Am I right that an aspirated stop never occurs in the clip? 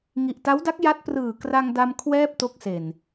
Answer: no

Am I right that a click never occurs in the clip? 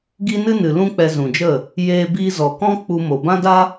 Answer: yes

